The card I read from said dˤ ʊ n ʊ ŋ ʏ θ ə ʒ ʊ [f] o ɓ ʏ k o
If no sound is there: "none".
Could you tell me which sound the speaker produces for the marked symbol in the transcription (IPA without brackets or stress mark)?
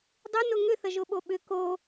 ɓ